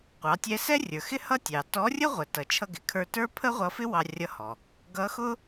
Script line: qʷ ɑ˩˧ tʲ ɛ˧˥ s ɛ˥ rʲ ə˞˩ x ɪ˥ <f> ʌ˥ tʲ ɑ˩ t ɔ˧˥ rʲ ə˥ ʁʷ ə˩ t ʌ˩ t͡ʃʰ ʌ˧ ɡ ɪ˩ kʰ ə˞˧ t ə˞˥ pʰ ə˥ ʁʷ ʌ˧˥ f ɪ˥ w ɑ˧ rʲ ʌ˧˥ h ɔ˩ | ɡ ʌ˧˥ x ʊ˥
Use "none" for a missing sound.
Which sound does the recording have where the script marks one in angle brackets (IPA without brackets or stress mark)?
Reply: h